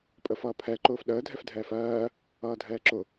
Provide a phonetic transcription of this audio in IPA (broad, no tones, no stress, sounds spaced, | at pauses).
pʼ ə f ʌː pʰ ɛ ǃ ʊː f ɗ əː dʱ ɛ f dʱ ɛː f ɜː | ʌː dʱ ɛː ǁ ʊ